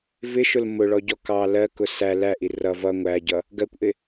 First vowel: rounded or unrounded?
unrounded